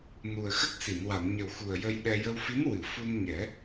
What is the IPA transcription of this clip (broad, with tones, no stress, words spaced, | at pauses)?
nu˨˩ə̯xə˦˥k̚si˨˩˨n wa˨˩˨nɲə˨˩wxu˨˩ə̯ jə˧jɗɛ˧ jə˧wfi˧˥n wɨ˨˩˨fu˧n ɲɛ˨˩˦